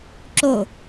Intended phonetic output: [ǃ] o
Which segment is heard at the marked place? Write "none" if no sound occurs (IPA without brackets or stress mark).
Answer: ǁ